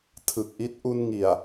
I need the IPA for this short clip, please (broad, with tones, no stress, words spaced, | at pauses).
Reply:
tʰɯ˨˩k̚ʔi˦˥t̚ ʔu˧nŋi˨˩a̯